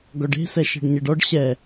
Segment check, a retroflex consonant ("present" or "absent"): present